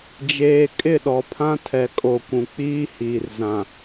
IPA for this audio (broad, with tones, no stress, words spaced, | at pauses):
d͡ʒeː˨ kʼɪ˦˨ɗɔ˨pʰã˦ tʰɛ˨kʼo˨kʷũ˨ k͡piː˦hiː˨r zã˨